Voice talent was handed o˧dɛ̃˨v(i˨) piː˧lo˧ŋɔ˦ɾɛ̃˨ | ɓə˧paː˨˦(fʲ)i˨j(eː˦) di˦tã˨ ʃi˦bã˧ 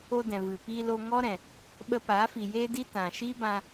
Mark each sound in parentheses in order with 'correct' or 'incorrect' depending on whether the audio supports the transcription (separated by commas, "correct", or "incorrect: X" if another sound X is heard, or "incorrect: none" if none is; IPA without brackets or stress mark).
incorrect: ɨ˨, incorrect: f, correct